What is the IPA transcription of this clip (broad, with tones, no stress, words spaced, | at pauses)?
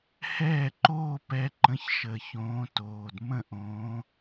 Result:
hɛː˥˩ǃoː˥˧pɛ˨˦ǃə̃˨˦ç ʃə˨˩çõː˨˦toː˨˩d mə̃˥˩ʔõː˨˦